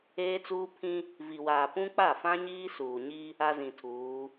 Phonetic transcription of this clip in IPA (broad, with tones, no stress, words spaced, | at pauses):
eː˦t͡suː˦pʰĩ˦ | vi˨waː˨ pũ˦k͡pa˦˨ fã˦ɲiː˦suː˨ɲi˦ | a˦zĩ˨tʰuː˨˦